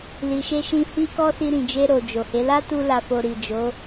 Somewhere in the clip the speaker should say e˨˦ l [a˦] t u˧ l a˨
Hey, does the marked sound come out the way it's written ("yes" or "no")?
yes